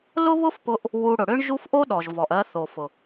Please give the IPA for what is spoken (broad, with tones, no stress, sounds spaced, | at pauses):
l ʊ˦ β ʊ˦ f p ʊ˧ ʔ | w u˧ ɽ ʊ˨ ɽ ʏ˦ ɳ ʒ u˦ f ʔ o˦ ɗ ɔ˨ ʒ v ɔ˨ ʔ ɜ˧ θ o˨ f ʊ˨